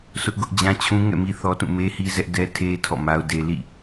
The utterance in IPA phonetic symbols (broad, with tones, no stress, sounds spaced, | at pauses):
s ʊ˦ ʔ ɡ ʊ˦ ʔ d͡ʑ ã˦ t͡ɕʰ ũ˦ ŋ ɛ̰˦˨ m i˦ θ ɔ˦ t ũ˦˨ m e˦ h i˦ z ɛ˦ ʔ d ɛ˦ tʰ e˦ tʰ ɔ̰˦˨ m a˦ ʊ̯ d e˦ l ḭ˦˨